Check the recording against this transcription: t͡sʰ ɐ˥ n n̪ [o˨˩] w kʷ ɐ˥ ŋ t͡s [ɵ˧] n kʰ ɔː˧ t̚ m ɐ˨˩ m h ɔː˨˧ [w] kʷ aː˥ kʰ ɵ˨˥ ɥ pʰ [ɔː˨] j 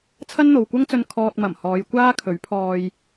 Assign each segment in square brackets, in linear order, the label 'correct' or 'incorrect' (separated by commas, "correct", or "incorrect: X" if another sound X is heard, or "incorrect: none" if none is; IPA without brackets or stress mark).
incorrect: o˨, correct, incorrect: j, incorrect: ɔː˧